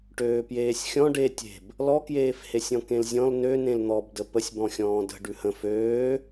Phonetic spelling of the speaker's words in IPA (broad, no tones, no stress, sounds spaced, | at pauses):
ʈ øː p j eː sʲ xʲ ɔ̃ ɖ e tʲ e̤ b | l ɔ k j eː f h e sʲ ɔ̃ k ẽ l zʲ ɔ̃ l n ø n ẽ l n̪ ɔ b d ə p ə sʲ b ɔ̃ xʲ ɔ̃ː d ə̤ ɖ ʉ h ə̃ f øː